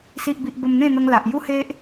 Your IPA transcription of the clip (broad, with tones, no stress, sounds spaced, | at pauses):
s i˨ ʔ b i˨ ʔ b ə˧ m n̪ ẽ˥˧ n̪ ə˧ ŋ l a˨ ʔ j u˦ h e˦ ʔ